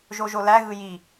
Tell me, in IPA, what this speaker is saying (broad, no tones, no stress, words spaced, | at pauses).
ʒoʒolæɣɯ ji